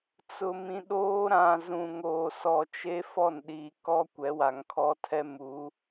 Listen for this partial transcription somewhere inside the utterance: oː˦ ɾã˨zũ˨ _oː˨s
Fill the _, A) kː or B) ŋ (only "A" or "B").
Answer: B